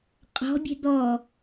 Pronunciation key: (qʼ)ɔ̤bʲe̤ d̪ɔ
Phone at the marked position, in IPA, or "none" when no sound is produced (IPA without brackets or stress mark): qʼ